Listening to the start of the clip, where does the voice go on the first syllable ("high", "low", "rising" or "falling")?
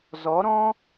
rising